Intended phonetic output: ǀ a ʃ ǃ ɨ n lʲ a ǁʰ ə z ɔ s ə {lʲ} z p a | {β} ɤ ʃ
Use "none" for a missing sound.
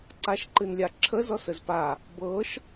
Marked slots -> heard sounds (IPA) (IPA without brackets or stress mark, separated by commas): none, b